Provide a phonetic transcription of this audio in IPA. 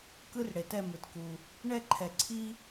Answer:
k ɯ˥ r ɽ e˨ t ɛ˥˨ m ɯ˨ t k u˨ | ɳ ɛ˥˨ ǃʰ ɛ˨ ǀʰ i˥

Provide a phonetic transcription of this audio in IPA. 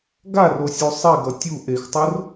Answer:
ɡ a r o sʲ u sˤ i ɡ ʌ tʲ u ʔ e x tˤ o r

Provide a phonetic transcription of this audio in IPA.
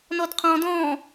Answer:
n ɔ d qʰ ɔ̃ d ɔ̃

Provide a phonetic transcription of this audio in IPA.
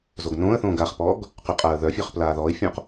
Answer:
z o ɡ n õː ə̯ θ õː ɡ a χ p ɔː ɡ | q y qʼ aː ə̯ ð œ fʲ œ χ p l aː ð ɔː ɪ̯ fʲ õ q

